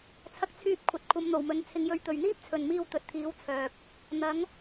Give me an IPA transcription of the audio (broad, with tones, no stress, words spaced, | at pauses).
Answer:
t͡sʰɐ˧k̚t͡sʰyː˧p̚kʷʰɐ˨t̚ kʷʰɐ˨˧mn̪o˨˩wmɵ˨˧n t͡sʰɪ˨ŋjɵ˨˥ɥ t̪ɵ˨ɥn̪iː˥p̚t͡sʰɵ˨nmiː˧w t̪ɵ˨t̚t̪ʰiː˨˧wt͡sʰœː˨p̚ | n̪ɐ˨˥ŋ